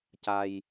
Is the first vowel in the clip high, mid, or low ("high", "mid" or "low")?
low